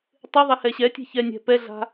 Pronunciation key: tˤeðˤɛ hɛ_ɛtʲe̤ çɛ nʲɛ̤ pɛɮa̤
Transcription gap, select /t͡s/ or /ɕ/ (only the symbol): ɕ